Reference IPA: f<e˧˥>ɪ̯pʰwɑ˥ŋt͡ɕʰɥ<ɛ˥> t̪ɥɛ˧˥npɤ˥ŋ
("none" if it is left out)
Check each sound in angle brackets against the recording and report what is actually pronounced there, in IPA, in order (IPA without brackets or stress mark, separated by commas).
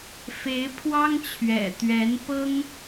e˧˥, ɛ̰˨˩